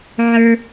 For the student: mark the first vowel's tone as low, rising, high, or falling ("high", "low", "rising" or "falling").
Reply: high